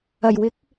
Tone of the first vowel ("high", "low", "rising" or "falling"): low